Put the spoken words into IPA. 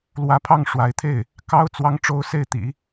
l w ä˧˥ pʰ ɑ˥˩ ŋ ʂ w a˧˥ ɪ̯ t̪ʰ e˥˩ ɪ̯ | k ɑ˥ ʊ̯ t͡s w ɑ˧˥ ŋ ʈ͡ʂ o˥ ʊ̯ s e˥˩ ɪ̯ t̪ ḭ˨˩˦

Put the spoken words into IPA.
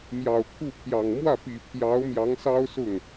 m j ɑ˨˩ ʊ̯ kʰ u˥˩ pʰ j ɑ˨˩ ŋ m w ä˥˩ p i˨˩ pʰ j ɑ˧˥ ʊ̯ m j ɑ˧˥ ŋ s ɑ˥ ʊ̯ s ʊ˥˩ ŋ

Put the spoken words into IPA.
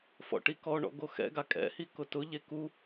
f ɔ̰ ʈ i k ɔ ɳ ɔ̰ ɡ o x ɛ̰ ɡ a kʼ ɛ̰ h i k ʊ t ʊ ʎ e k u

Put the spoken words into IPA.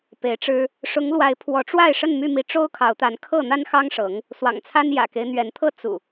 p e˨˦ ɪ̯ ʈ͡ʂ ɻ̩˦ | ʂ ʊ˨˦ ŋ l w a˨˦ ɪ̯ pʰ w ɔ˨˦ ʈ͡ʂ w a˥˨ ɪ̯ ʂ ə˥˨ n m y˥˨ m i˨˦ ʈ͡ʂ o˦ ʊ̯ kʰ ɑ˨˦ ʊ̯ t̪ a˨˦ n kʰ ɤ˥˨ n̪ a˦ n x ɑ˦ ŋ ʂ ɤ˨˦ ŋ | s w ɑ̰˨˩ ŋ t͡sʰ a˦ n j ä̰˨˩ k e˦ ɪ̯ n̪ ɥ ɛ˨˦ n t̪ʰ ɤ˦ t͡s ṵ˨˩

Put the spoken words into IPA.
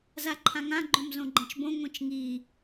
z a ǃʰ ã ŋ ã ɡ͡ǃ õ m z õ ɡ͡ǃ ɛ̃ t͡ʃ b õ ŋʷ ĩ t͡ʃ ŋ i

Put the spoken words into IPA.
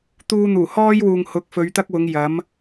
t̪ uː˧ n̪ uː˨˩ h ɔː˧ j w uː˨ ŋ h ʊ˨˥ k̚ f ɵ˨˧ ɥ t̪ ɐ˥ k̚ w ʊ˨˧ ŋ j ɐ˨˥ m

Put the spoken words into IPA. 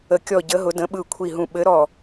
ə˦˨ kʲ ɔ˦˨ ɟ ə˧˥ ɦ ʊ˧˥ d ə̃˧˥ ɓ ɯ˦˨ kʷʰ i˦˨ ɦ ũ˦˨ ɓ ɘ˧˥ ɾ ɔ˦˨

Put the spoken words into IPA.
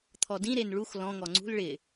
t̪ʰ ɔ d ĩ ɾ e n ɭ u x l ɔ̃ ŋ ɔ ŋ͡ǀ ṳ l ɭ ɪ

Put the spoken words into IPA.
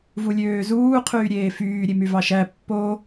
v u lʲ øː z uː qʰ yː ɾʲ eː f yː ɾʲ e m y v ɑ ʃ æ pː o

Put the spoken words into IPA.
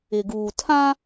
ɪ˨ ɡ uː˨ tʰ ã˦

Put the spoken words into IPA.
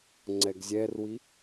ŋ͡ǀ ɛ ɡ zʲ ɛ r w i

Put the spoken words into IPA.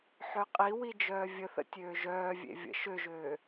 ħ ø qʼ i w i d͡ʒ œː vʲ ə θ ə̰ tʲ øː ʒ œː vʲ ḛ vʲ ə̰ ʃ ø ʒ øː

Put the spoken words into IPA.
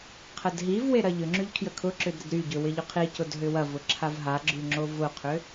qʰ ə d ɦ i v w e ɾ ɐ ʎ ʏ ŋ͡ǁ y ʎ kʰ j ə kʰ ʊ ǁ ʏ d ɾ ə d ɾ y ɟ ʏ w ɪ ʎ ʊ qʰ i c ʊ d ɦ ʏ w ɐ v ʊ ǁʰ a v ɦ a ɡ͡ǁ y ŋ͡ǁ o v ʊ qʰ ʏ

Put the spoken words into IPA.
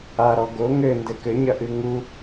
a ɾ ɔ ɡ o ŋ ɘ n d ɘ k ɘ ɲ ɐ ʔ ɨ ŋ u

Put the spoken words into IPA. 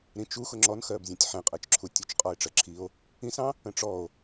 ɾ ĩ t͡ʃ u x ʊ ŋ͡ǁ ɔ n x ɜ b zʲ ɔ̃ tʲ ħ ɛ̃ qʼ ɜ t͡ʃ ǁʰ u tʲ ʊ t͡ʃ qʼ ɔ e̯ ʈ͡ʂ ɜ ǁʰ i o̯ | ĩ s ɑ̃ | ə̃ ʈ͡ʂ ɔ o̯

